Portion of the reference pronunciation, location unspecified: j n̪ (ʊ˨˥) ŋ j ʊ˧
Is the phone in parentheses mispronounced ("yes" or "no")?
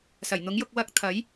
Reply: no